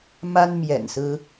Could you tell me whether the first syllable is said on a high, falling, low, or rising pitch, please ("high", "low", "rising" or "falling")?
high